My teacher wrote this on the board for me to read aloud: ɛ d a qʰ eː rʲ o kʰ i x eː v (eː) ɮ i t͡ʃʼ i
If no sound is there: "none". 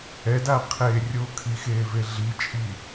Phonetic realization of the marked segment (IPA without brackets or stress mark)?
e